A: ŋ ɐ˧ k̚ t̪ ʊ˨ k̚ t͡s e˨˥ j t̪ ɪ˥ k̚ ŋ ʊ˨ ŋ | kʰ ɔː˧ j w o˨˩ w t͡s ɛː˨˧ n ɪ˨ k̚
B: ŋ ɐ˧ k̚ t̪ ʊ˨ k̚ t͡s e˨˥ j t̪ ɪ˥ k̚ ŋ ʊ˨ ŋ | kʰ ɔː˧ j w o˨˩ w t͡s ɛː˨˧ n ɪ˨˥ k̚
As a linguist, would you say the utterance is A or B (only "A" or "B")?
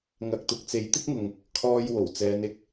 A